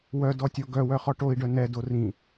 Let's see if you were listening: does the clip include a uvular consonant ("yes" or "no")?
yes